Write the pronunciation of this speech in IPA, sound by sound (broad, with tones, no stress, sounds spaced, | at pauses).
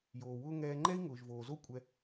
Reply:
j oː˩ w ʊː˦ ŋ ɛː˨ ŋ͡ǃ ɛ˦ i̯ ŋ ʊː˩ ʒ v oː˩ z o˦ kʷʼ ɛ˨